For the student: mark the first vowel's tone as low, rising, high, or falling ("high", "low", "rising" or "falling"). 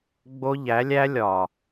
high